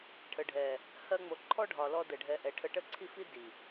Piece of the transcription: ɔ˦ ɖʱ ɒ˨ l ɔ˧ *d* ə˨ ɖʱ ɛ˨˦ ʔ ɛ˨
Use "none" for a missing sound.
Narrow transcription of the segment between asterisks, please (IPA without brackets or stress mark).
d